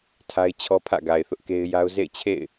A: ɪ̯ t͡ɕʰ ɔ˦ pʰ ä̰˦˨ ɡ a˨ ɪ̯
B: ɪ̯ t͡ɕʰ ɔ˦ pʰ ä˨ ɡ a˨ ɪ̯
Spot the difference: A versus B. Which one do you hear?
A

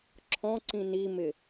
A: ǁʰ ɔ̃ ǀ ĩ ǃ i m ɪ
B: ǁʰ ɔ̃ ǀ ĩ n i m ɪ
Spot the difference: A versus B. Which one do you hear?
B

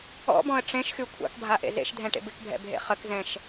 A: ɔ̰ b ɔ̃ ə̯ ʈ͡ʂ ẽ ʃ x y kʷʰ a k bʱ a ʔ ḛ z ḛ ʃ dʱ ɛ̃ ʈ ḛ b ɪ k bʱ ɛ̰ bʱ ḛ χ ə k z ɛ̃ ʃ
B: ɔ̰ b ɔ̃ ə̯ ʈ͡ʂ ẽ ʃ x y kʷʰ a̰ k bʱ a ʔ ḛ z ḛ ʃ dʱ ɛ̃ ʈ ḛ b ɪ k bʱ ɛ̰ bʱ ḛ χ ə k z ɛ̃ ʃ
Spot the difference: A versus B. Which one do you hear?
B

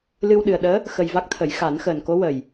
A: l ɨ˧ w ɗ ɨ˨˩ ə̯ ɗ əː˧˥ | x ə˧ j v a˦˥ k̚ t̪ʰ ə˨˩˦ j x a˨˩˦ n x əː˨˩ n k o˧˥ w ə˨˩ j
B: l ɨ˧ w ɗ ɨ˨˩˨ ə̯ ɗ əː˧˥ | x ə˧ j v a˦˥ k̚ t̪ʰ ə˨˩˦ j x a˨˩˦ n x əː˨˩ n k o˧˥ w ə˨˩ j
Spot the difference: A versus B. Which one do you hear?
A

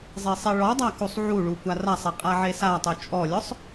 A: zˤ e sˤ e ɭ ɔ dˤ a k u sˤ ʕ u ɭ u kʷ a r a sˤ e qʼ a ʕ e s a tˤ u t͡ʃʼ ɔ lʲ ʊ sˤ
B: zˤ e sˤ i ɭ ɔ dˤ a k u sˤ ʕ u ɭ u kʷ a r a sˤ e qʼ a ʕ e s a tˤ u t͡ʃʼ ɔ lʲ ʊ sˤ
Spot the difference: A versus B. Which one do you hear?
A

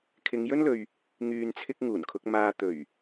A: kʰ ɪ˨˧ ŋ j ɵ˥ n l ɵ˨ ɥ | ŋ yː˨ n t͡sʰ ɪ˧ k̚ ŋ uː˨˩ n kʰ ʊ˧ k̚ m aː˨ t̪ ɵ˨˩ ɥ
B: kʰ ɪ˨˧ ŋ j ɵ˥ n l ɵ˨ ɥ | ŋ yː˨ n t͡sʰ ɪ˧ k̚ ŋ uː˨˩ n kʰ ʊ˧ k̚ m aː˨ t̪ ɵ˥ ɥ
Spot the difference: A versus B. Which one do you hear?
A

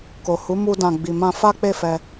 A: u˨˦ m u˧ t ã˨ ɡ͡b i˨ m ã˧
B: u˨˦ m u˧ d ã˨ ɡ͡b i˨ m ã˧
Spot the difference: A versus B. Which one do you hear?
B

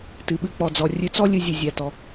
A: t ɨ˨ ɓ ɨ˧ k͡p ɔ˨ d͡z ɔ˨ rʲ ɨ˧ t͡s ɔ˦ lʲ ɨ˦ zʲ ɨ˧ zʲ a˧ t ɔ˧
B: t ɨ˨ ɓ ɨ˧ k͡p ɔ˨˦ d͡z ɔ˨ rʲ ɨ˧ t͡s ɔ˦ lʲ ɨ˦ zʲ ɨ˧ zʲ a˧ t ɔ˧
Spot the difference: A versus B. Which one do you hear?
A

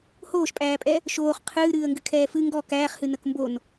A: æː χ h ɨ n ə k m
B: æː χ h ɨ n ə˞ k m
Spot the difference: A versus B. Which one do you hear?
A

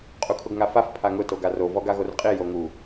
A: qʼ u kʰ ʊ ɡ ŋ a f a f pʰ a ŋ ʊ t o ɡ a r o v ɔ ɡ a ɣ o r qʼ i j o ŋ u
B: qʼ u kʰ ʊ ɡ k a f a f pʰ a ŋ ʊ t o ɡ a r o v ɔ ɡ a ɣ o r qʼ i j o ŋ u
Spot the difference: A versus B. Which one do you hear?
A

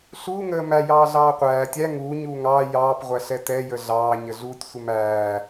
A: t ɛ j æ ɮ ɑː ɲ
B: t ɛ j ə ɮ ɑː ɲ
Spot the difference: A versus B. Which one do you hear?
B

